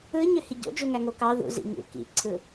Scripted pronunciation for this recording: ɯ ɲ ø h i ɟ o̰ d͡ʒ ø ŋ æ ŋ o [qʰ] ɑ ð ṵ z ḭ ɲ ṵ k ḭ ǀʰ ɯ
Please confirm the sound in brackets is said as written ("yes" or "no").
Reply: no